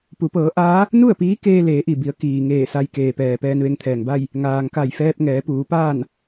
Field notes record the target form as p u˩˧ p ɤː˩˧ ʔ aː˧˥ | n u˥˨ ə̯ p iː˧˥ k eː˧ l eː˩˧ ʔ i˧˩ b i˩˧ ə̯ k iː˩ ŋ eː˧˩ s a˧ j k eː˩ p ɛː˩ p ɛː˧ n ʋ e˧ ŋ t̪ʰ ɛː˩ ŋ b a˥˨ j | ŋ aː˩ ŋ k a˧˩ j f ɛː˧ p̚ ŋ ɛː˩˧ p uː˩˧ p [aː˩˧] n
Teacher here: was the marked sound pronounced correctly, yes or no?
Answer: no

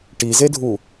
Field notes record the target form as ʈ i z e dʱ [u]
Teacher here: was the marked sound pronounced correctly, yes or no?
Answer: yes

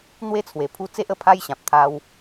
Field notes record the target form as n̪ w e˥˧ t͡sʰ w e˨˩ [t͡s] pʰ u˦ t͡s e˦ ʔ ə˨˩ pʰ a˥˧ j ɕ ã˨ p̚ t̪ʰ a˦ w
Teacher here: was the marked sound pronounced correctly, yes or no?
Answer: no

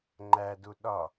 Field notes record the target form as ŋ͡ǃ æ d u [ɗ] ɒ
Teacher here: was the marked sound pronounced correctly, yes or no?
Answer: yes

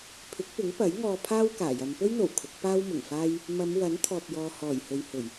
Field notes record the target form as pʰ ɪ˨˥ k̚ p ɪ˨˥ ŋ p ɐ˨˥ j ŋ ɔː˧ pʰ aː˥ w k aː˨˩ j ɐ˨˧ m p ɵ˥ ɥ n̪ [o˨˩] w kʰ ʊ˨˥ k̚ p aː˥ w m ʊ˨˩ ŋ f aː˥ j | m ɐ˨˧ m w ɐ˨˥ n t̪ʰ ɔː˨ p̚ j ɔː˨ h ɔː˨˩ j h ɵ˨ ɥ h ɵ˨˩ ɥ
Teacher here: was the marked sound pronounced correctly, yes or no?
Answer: yes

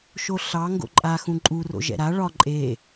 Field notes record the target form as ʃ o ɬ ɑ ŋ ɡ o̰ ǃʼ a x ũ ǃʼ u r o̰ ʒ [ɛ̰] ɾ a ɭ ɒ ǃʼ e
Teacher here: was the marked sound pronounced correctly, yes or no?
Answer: yes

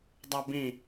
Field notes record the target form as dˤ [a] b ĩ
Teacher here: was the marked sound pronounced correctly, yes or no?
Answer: yes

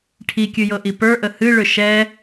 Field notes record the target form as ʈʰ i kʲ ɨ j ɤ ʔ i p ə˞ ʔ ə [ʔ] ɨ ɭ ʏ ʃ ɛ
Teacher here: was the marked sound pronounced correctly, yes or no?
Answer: no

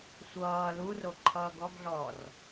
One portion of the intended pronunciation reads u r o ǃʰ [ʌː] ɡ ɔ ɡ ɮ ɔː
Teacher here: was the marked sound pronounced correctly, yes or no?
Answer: yes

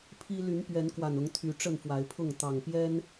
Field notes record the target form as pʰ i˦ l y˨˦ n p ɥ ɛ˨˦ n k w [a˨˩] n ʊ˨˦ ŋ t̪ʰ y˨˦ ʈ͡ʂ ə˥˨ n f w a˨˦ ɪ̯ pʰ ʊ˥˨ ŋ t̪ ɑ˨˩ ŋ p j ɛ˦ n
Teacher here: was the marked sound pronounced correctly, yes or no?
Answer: yes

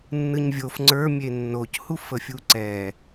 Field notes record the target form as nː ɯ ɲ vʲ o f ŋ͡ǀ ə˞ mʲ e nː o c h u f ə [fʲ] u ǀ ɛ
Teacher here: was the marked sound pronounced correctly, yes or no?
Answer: yes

